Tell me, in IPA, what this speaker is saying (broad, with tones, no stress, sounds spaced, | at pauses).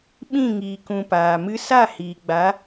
ɓ ĩ˦˨ ŋ iː˨ k ũ˨ p aː˨ m ɨ˧ s a˦˨ h iː˨ ɡ͡b a˨˦